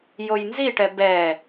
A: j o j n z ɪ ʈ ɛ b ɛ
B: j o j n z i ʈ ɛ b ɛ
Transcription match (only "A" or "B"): B